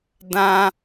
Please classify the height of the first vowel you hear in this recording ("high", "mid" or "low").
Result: low